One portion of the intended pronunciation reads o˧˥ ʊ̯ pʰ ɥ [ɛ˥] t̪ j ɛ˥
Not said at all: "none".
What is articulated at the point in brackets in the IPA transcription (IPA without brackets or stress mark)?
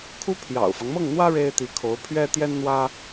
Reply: ɛ˥